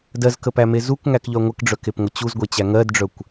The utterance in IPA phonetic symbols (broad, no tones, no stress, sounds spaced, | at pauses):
d ɜ z k ə p æ m e z u k ŋ æ k ʎ œ ŋʷ ə k ɖ͡ʐ œ k e p ŋʷ ə t͡ɕ u z ɡʷ e t͡ɕ æ ŋ ɜ d ɖ͡ʐ œ kʷ